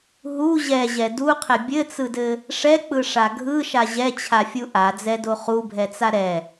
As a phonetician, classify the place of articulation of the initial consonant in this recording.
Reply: glottal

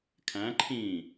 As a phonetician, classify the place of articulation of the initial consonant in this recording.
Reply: velar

